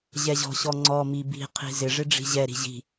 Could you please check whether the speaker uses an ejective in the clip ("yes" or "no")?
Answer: no